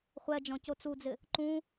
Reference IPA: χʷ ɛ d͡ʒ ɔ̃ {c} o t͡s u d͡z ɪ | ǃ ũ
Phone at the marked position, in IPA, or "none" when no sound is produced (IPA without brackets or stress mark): c